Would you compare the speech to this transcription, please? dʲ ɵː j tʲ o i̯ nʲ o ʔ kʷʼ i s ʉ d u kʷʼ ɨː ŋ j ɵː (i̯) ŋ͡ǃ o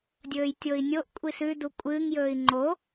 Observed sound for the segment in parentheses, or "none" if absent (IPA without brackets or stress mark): i̯